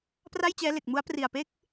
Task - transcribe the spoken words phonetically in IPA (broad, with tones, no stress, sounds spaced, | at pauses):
p r a˥˩ j t͡ɕ ɛː˦˥ l e˨˩ k̚ m u˦˥ a̯ p r i˨˩ a̯ p e˥˩ k̚